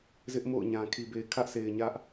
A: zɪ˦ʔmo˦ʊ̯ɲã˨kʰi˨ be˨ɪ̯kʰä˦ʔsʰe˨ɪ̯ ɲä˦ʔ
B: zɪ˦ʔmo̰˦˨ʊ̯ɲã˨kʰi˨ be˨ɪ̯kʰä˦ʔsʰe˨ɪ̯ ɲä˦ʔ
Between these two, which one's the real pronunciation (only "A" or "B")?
B